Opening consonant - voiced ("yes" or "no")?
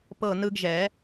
no